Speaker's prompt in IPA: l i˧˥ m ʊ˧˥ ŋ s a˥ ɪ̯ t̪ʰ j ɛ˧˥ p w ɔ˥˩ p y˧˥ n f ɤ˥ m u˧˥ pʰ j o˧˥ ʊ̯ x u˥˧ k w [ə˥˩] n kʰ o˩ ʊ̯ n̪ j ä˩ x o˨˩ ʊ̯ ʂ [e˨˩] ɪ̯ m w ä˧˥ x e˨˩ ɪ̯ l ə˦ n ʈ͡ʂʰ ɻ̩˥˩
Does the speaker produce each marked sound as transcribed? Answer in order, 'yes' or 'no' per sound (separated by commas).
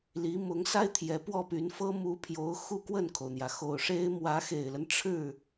yes, no